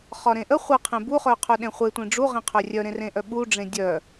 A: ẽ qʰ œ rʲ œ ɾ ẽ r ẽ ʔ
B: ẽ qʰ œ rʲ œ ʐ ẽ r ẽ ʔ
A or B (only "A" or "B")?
A